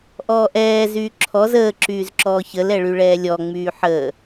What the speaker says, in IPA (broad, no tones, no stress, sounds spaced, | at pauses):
ʔ ɔː ʔ ɛː z yː ǁʰ ɔ z əː ǁ yː z ǁ ɔː ç ə l ɛ ɭ y ɭ ɛː lʲ ɔ ŋ͡m yː ħ əː